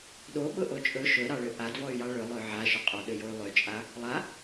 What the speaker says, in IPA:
ɗo ɓʊʔot͡ʃʼɵ ʃɵɾɑɭø ʔadvɔy̯jɑ ɭɵ lˠøʕaʃʊ qʼɔɗøjoy̯ lˠøt͡ʃʼa | lˠa

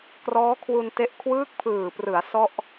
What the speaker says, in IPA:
krɔː˦˥kʰwu˧nte˦˥ʔ kʰwɯː˦˥k̚pʰɯː˨˩prɯ˩˦a̯ sɔ˥˩ʔ

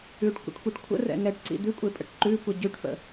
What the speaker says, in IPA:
ʉʈkʷə̰ʈkʷiʈ kʷʰə̰rɛ̰ ŋɛʈǀḭ d̪ʉkʷʼepʼə̰ʈ ǃʉkʷə ɟʉʈfə̰

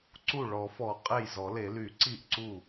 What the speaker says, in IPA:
ǀu˥˩ ɭɔ˨˩˦fɔ˨˩˦ qʼe˥˩jzɔ˨˩˦le˨˩˦ ly˨˩˦ ǀi˥˩ʔǀu˥˩

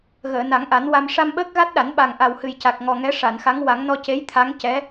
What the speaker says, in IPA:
ɣəː˨˩˨na˨˩˦ŋʔa˨˩˦nwa˧m ʂa˧mɓəː˦˥k̚ɣa˦˥t̚ɗa˨˩˦n ɓa˨˩ŋ ʔa˨˩whɨ˨˩jca˨˩k̚ŋɔ˨˩ ŋɛ˧˥ʂa˨˩˨nxa˧˥ŋ wa˨˩˦ŋnɔ˧ce˧˥j t̪ʰa˧˥ŋ cɛ˧˥

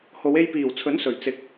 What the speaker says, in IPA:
ho˨˧we˧jpiː˨˩w t͡sʰɵ˨˥n sɵ˨˩ɥt͡sɪ˨˥k̚

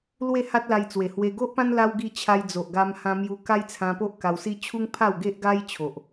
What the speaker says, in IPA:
lwe˥˧ha˦t̚la˧jt͡swe˨˩ hwe˧ ɡo˦ʔpã˦n la˦wɡi˥˧ t͡ɕʰa˧jd͡zo˨ʔ ɡa˧mhã˧mju˧ ka˦jt͡sʰã˧po˦ʔ ka˧wsi˦ t͡ɕʰu˦ŋpʰa˥˧w ɡe˦ʔɡa˦jt͡ɕʰo˨ʔ

